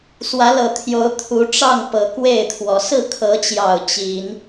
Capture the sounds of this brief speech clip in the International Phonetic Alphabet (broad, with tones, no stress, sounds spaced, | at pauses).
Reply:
s w ä˨˦ l ɤ˨˩ t̪ʰ j o˨˦ ʊ̯ t̪ʰ u˨˦ ʈ͡ʂ ɑ˥˨ ŋ p ɤ˨˦ k w e˥˨ ɪ̯ t̪ʰ w ɔ˨˦ s ɹ̩˥˨ kʰ ɤ˨˦ t͡ɕ j ɑ˨˩ ʊ̯ t͡ɕ i˨˦ n